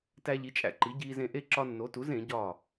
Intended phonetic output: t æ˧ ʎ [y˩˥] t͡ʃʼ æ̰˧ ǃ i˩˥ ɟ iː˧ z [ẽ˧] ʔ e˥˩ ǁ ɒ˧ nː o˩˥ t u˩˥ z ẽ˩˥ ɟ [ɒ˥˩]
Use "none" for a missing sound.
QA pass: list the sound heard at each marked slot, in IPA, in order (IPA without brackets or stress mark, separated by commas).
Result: i˩˥, ẽ˧, ɒ˥˩